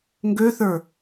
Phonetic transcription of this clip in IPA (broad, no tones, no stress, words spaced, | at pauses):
ŋɡøθə˞